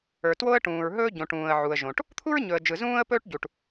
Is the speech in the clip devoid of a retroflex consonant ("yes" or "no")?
no